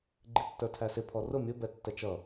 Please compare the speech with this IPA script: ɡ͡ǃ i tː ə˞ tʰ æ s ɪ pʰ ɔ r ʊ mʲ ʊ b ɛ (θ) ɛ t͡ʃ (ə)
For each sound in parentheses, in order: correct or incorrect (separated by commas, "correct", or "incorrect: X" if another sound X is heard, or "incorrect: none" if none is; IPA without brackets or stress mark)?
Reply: incorrect: tː, incorrect: ʌ